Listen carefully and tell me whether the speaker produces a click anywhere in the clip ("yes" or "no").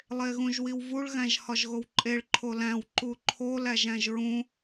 yes